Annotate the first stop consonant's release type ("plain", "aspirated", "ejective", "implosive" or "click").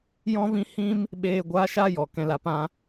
implosive